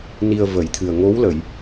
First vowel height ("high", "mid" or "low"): high